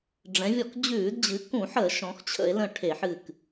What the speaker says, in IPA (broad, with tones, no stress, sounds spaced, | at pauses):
ɖ͡ʐ ɛ̃˩˧ vʲ ɔ˧˩˧ k d͡ʑ ʉː˧˩˧ d d͡ʑ ɨ˩˧ k ũ˧˩˧ ħ ə˧˩˧ ʃ ɔ̃˩˧ x t͡ɕʰ ə̰˧˩˧ e̯ l ə̃˧˩ ʈʰ e˧˩˧ ħ ɨ˧˩ k